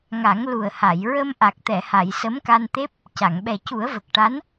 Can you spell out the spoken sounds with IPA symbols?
ŋ a˨˩˦ ŋ l u˨˩ ə̯ h a˨˩˨ j ɹ ə˧ m ʔ a˨˩ k̚ t̪ ɛ˨˩˨ h a˨˩˨ j s ə˧˥ m k a˧ n t̪ e˦˥ p̚ | c a˨˩˨ ŋ ɓ ɛ˨˩ c u˨˩˦ ə̯ v ə˨˩ k̚ ʈ a˧˥ n

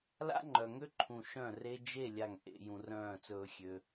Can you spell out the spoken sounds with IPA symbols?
l a̰˦ ŋ͡ǃ œ˨ ŋ ø˦ ǃʰ ũ˨ ʃ œ̃˦˨ r e˦ d͡ʒ e˦˨ lʲ a˨ ŋ ʔ ḛ˨ j ũ˨ r œ̃ː˦˨ t͡s ɵː˧ xʲ ø˧

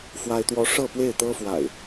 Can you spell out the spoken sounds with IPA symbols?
f w a˦ ɪ̯ t̪ w ɔ˦ ʂ ɤ˥˨ p w e˥˨ ɪ̯ t̪ ɤ˦ f w a̰˨˩ ɪ̯

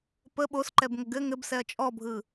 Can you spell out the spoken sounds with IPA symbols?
p ə ɓ o s ǃ ɛ b ŋ ə ɡ ɘ ŋ ɘ b s ɛ ɐ̯ t͡ʃʼ ɔ bʱ ɯ

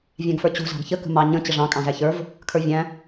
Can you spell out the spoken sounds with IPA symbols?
vʲ æ̃ ɡ f ə˞ t͡ɕ ṳ z ɑ̤ ɡ ç ə k ə̤ m ɑ ɲ ə̃ t͡ɕ ə ʐ ɑ̃ kʼ ɑ̃ z æ ç ə˞ v | kʰ ə˞ vʲ æ̃

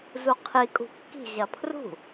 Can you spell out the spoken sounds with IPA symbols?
z u qʰ i kʼ ṳ kː i̤ ʑ ɐ pʰ r ṳ

